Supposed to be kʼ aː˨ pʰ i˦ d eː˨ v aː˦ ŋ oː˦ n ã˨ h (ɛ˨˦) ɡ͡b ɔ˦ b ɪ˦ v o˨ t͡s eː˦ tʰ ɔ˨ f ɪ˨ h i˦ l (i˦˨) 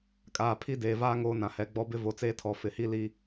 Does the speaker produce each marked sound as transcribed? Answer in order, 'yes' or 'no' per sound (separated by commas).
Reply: yes, no